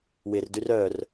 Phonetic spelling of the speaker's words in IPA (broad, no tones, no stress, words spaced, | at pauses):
wɪrdyr œr